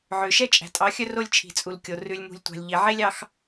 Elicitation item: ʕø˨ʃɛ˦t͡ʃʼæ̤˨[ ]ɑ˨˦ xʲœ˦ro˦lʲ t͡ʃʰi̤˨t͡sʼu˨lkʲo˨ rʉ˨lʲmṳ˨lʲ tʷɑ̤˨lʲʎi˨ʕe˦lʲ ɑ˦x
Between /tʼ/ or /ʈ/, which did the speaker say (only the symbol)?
tʼ